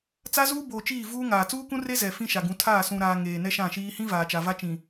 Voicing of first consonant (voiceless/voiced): voiceless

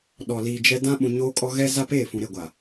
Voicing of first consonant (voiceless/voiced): voiced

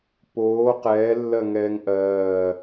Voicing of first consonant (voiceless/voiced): voiceless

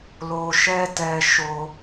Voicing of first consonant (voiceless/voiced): voiced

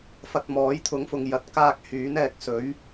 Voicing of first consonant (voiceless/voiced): voiceless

